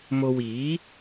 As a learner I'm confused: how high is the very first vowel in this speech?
mid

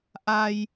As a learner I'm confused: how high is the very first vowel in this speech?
low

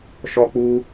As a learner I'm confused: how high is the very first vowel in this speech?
mid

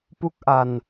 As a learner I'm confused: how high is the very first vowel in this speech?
high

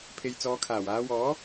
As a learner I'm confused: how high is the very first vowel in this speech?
mid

